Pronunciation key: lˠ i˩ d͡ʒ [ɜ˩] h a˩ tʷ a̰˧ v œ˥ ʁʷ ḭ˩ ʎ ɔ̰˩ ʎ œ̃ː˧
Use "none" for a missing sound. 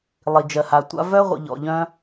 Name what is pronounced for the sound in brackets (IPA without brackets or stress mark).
ɜ˩